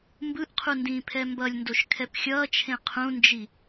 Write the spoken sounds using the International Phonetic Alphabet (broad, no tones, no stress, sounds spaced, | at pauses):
m b ɯ ʔ qʰ u n d ĩː pʰ ɛ m b ʌ lʲ n d o ʃ kʰ ɛ p xʲ ʌː t͡ʃʰ ẽ qʰ ũ n d͡ʒ i